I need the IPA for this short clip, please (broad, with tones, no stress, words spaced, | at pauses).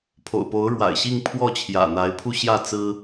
pʰo̰˨˩ʊ̯po˨˦ʊ̯ɻwa̰˨˩ɪ̯ɕi˥˨ŋ pʰwɔ˥˨t͡ɕʰjä̰˨˩ n̪a˨˦ɪ̯pʰu˧ɕjä˥˨ t͡sɹ̩˦